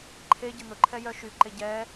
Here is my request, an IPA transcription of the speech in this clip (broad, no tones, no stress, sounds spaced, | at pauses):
ǃʰ e ɟ ə n̪ ʊ ǃʰ ɛ j œ ʃ y ǃ e ɟ ɛː